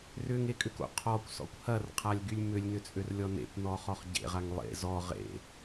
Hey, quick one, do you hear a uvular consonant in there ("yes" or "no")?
yes